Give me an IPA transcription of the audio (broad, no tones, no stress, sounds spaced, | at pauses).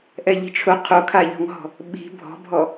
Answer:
ʔ ɛ ʎ i̤ t͡ʃʰ ʊ qʰ o kʰ a ʎ ɔ̤ ŋ ɦ ɔ̤ | ɓ i̤ bʱ ɔ̤ bʱ ɔ